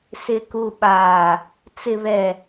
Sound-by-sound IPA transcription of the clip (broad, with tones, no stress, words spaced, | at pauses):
sɪ˨ku˨ɓaː˨ | t͡sɪ˨βɛ˨